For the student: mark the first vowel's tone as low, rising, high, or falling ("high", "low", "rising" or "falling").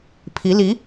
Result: rising